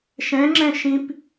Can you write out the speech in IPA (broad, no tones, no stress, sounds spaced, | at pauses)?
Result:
ʃ ɛ̃ ŋ͡ǁ ɛ̃ ʃ ĩ p